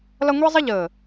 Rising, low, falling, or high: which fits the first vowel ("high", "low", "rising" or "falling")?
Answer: high